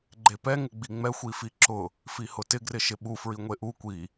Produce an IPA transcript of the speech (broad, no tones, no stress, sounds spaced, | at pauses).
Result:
ɡ͡ǃ e p ɛ ŋ ɪ ɡ͡b i ŋ͡m ɛ xʷ i f i ǁ ʊ | f i h ʊ t ɪ ɡ r ɪ ʃ ɪ ɓ u f ɹ i ŋʷ e ʔ u kʷ i